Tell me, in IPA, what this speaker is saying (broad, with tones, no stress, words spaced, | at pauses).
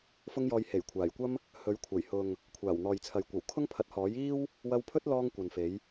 fʊ˥ŋjɔː˧j he˨˩jkʷʰaː˨˩jkʷɐ˥m | hɵ˨˥ɥkʷʰɐ˨˩jhʊ˨ŋ | kʷʰaː˨˩wn̪ɔː˨jt͡sʰɐ˨j kʷɐ˨˩wkʰʊ˥ŋpʰɐ˨˥t̚ hɔː˨˥jiː˥w | wɐ˧wpʰɵ˥t̚lɔː˧ŋ kʷɐ˨nfe˨˥j